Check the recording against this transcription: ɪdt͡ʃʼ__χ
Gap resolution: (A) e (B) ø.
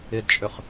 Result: B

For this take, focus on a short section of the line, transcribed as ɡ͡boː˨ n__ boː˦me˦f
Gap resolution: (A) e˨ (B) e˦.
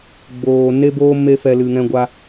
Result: B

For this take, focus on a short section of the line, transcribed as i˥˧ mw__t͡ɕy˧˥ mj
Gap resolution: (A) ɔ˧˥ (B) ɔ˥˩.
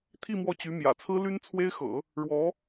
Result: B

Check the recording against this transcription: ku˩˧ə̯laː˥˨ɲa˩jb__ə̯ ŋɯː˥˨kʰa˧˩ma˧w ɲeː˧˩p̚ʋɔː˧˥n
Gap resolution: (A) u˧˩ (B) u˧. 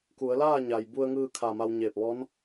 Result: B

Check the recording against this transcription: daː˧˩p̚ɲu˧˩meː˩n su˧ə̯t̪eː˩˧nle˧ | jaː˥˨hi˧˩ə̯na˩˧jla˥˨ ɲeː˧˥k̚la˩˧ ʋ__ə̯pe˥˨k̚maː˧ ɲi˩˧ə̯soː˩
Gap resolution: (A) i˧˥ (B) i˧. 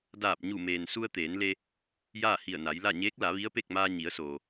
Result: A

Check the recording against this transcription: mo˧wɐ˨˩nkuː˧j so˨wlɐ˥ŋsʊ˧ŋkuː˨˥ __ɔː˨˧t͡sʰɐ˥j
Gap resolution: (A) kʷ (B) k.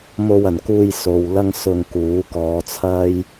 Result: B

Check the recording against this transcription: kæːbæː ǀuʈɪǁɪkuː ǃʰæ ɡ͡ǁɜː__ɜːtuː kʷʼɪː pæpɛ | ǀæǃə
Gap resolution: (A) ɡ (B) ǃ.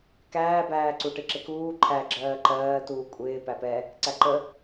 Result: B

